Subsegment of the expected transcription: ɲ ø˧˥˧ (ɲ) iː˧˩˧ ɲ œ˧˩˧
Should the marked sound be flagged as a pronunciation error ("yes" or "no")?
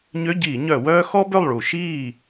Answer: yes